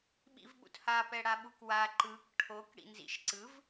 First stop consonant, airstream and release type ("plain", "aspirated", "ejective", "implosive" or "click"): implosive